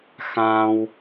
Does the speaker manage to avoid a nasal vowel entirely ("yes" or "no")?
no